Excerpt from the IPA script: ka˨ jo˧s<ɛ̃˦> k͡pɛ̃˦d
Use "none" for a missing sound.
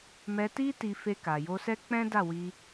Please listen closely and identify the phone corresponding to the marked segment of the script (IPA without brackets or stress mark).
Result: ɛ˦